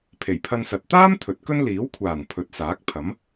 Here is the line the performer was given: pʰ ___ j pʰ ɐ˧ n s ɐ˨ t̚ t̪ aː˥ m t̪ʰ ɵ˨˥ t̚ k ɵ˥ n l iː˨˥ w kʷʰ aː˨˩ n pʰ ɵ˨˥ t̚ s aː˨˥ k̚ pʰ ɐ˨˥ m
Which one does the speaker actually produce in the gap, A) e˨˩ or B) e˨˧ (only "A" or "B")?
A